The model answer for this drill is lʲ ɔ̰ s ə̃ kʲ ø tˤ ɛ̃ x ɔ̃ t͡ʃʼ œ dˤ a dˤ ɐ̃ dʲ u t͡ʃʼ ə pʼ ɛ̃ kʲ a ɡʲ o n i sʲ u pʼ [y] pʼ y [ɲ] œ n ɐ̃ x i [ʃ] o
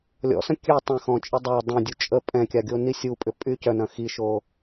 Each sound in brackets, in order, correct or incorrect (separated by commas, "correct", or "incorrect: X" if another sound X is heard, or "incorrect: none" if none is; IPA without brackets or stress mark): incorrect: ʏ, incorrect: c, correct